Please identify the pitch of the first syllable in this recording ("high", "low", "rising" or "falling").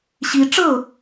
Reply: high